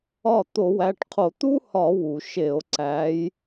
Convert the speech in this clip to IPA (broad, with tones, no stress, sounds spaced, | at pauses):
ɒ˥˩ t̪ o˧˩˧ w æ˩˧˩ ʈ qʰ o˧˩˧ t̪ u˥ h ɒ˧˩˧ w u˩ ʃ e˧˩˧ o̯ ǀ æ˨˦ j